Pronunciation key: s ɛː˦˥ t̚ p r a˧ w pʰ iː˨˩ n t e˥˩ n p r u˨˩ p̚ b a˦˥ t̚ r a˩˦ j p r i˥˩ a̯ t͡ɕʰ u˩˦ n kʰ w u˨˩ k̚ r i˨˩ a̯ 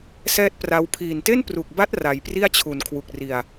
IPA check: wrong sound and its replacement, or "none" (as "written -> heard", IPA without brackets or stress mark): p̚ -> k̚